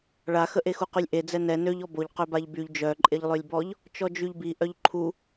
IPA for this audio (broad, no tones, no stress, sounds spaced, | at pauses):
ɭ a x ə ʔ e x u q y lʲ ʔ e d͡z ɛ n ɛ n ø ʎ ɔ b o ʎ q ø b a ʎ b y ʎ d͡ʒ œ ǃʼ e ʎ lˠ ø lʲ b ɔ ʎ | t͡ʃ ɔ d͡ʒ y ʎ b i ʔ œ ʎ ǃʰ u